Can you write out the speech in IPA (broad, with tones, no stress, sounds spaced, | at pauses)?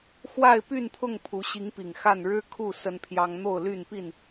x w a˥˨ ɪ̯ p y˥˨ n pʰ ʊ˥˨ ŋ pʰ u˨˦ ɕ i˨˦ ŋ p i˨˩ ŋ x a˥˨ n ɻ ɻ̩˦ kʰ u˥˨ s ə˦ n pʰ j ɑ˦ ŋ n̪ o˥˨ ʊ̯ l y˥˨ n p i˥˨ n